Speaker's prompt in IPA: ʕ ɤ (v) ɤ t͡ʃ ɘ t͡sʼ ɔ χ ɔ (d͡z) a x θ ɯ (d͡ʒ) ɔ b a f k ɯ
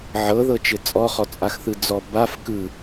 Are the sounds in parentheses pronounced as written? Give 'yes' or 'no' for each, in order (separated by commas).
no, no, no